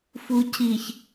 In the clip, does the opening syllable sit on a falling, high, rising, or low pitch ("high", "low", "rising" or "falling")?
low